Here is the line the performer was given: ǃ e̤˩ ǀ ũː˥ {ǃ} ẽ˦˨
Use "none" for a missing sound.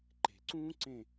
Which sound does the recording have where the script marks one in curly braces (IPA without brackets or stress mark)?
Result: ǀ